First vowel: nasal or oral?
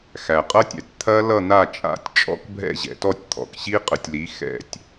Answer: oral